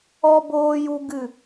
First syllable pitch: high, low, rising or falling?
high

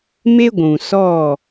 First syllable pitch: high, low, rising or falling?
high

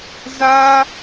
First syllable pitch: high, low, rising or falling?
high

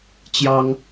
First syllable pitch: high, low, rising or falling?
high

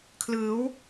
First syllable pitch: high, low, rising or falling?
rising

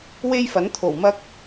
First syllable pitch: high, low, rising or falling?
high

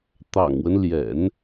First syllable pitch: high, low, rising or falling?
low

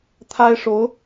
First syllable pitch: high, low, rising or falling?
high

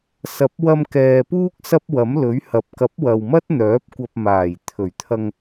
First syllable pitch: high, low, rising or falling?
rising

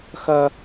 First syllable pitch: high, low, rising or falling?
high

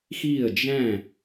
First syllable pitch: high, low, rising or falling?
falling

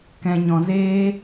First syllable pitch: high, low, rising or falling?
low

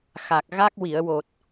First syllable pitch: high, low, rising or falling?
low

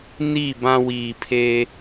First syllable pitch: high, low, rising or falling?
falling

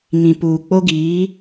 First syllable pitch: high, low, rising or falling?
low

